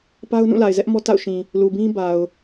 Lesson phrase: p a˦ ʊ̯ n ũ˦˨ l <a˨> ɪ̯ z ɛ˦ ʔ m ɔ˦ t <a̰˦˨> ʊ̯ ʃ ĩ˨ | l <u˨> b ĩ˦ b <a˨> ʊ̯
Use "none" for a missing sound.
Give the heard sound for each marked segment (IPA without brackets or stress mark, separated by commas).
a˨, a̰˦˨, u˨, a˨